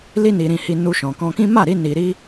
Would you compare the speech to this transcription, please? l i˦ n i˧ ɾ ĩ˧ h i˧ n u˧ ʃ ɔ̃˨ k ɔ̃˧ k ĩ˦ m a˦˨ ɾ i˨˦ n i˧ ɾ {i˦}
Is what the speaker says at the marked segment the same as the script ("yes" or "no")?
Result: yes